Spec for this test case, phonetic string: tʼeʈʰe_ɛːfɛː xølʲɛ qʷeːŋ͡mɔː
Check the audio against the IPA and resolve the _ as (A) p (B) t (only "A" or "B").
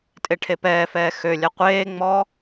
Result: A